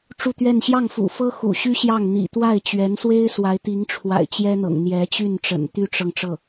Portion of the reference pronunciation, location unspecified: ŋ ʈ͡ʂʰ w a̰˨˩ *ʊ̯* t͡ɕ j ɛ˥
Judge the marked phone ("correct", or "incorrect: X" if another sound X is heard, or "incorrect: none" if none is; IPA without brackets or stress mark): incorrect: ɪ̯